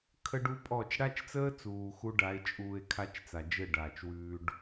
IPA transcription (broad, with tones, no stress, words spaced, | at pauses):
kʰə˦ɖu˦pʼɔ˦˨t͡ʃ ɽa˦t͡ʃt͡səː˦t͡suː˨ xu˦ɖa˨˦e̯t͡ʃʼuː˧e̯kʰa˦t͡ʃ t͡sa˨d͡ʒɘ˦˨ɖaː˨t͡ʃ wʉː˧ɖ